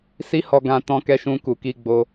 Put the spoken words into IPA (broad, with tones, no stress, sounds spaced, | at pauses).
s i˦ h ɔ˧ ɡ ã˧ t ɔ̃˦ k ɛ˦ ʃ ũ˦ k u˧ k i˦ ɡ͡b o˦